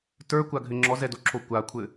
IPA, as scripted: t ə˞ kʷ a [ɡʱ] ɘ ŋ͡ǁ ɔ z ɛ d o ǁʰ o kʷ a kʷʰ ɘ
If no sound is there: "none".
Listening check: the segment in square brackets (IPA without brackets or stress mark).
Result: ɡʱ